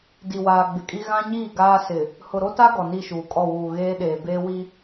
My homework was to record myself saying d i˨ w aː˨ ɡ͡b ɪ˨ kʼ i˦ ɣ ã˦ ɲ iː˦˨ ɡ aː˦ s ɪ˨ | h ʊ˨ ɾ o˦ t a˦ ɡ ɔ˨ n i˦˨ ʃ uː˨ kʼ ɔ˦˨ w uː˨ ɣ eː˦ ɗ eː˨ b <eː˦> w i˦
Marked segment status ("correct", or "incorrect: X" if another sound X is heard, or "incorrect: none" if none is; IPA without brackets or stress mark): correct